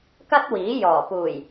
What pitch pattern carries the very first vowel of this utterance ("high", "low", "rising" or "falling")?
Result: high